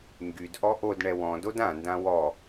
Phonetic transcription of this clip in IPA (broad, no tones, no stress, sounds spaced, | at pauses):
ŋ ɡ y d ʔ ɔ ʔ o d ɳ ɛ w ɔ̃ d o d ã n d ã w ɔ